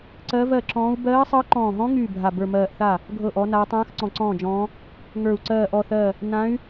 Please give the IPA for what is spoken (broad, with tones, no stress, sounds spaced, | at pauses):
ǀ ɜ˧˥ v ɜ˥˩ ǁ ɔ̃ː˧˥ u̯ b ɜː˧˥ sˤ ɤ˧˥ ǃ ɔ̃ː˧˩ ɦ ɔ̃˧˥ ŋ yː˥˩ bʱ a˧˩ b ə˞˧˩ m ɜː˧˩ ʔ θ a˥˩ | ɡʱ ɤ˥˩ ʔ ɔ˧˥ n aː˧˥ tˤ ãː˧˥ x ǀ ɔ̃˧˩ ǀ ɔ̃ː˥˩ d͡ʒ ɔ̃ː˧˥ | ŋ ə˞˧˩ u̯ ǀ ɜː˧˩ ʔ ɔ˧˩ θ ɜ˧˩ | n ã˧˥ y̯